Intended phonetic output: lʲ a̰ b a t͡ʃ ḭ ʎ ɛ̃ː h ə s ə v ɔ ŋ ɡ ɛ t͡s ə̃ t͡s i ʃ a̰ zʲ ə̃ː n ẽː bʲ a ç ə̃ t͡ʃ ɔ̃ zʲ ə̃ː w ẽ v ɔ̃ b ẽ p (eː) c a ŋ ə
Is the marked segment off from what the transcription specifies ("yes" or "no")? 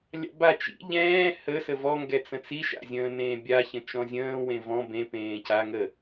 yes